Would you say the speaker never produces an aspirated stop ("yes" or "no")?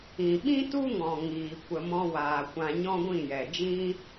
yes